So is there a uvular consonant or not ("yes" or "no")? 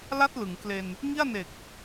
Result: no